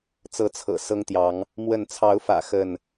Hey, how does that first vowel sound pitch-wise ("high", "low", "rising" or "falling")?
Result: rising